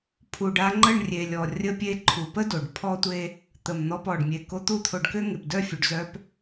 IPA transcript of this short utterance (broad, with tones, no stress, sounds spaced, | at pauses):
pʰ u˨ ɖ a˧ ŋ͡ǃ ə˦˨ ɳ rʲ e˨ lʲ ɔ˨ rʲ ə˧ pʲ e˧ ǃʰ u˨ p ə˦ d o˨ ɖ pʰ ɔ˦ tʷ e˦ | t̪ ə˨ m n̪ ɔ˧ p ɔ˨ ɖ mʲ e˧ k o˧ t̪ u˦ t̪ʰ o˧ ɖ k ø˦ ŋ e˨ p d œ˦˨ fʲ u˨ ɖ z œ˦ p